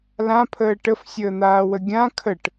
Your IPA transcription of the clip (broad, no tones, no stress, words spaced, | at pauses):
lãpʰəː ʈəfsʲəːn̪aːwə ɡʲã kʰəʈ